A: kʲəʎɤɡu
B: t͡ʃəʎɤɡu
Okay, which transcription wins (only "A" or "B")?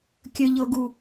A